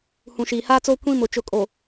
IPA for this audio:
h ũ˨ ʃ iː˨ h aː˦ t͡s oː˦ kʷ ĩ˦ m ʊ˨ t͡ʃ ʊ˨ kʼ o˨

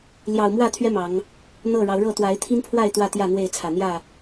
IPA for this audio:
l j ɑ˨˩ ʊ̯ m w ä˥˨ t̪ʰ ɥ ɛ˦ m ɑ˨˦ ŋ | n̪ ɤ˥˨ ɻ ɑ˨˦ ʊ̯ ɻ ɤ˥˨ t̪ w a˨˦ ɪ̯ t̪ʰ i˦ n pʰ w a˥˨ ɪ̯ t̪ w ä˥˨ t̪ j ä˥˨ n̪ w e˥˨ ɪ̯ t͡sʰ ä˨˩ n̪ j ä˥˨

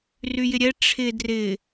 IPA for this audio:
r y j ɪ ɾʲ ɛ ʈ͡ʂʰ ɪ d r ɪ

